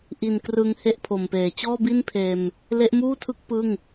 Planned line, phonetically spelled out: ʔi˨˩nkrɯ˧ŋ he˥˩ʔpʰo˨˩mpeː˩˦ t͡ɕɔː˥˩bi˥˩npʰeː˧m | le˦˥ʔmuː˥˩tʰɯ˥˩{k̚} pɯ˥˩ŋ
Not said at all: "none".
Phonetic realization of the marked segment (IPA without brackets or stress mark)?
k̚